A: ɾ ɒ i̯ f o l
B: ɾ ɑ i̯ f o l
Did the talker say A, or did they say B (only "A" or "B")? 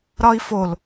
A